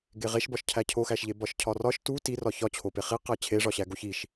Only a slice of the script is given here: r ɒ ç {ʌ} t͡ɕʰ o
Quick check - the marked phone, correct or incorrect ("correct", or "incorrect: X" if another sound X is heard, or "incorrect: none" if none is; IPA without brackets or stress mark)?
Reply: incorrect: ɒ